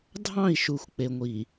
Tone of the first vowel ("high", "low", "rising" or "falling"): falling